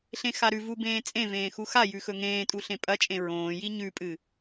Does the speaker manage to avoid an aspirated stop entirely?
yes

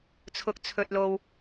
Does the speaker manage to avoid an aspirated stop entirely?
no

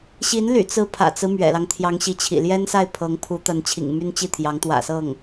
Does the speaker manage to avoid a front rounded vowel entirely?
no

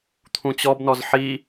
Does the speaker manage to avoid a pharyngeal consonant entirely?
no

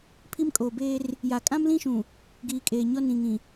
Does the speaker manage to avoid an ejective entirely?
no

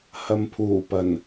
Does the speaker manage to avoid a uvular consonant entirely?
yes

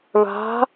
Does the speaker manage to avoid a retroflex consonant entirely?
no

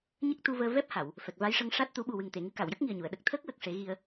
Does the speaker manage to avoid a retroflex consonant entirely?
no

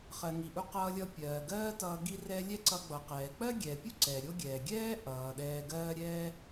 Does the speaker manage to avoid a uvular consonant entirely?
no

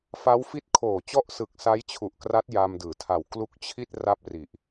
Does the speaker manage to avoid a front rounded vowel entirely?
yes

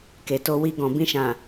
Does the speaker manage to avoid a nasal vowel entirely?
no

